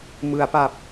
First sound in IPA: m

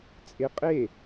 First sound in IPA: t͡sʼ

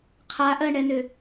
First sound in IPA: qʰ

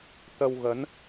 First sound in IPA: t̪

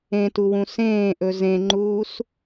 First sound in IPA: ẽ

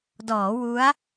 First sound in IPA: d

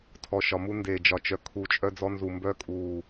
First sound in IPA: tʰ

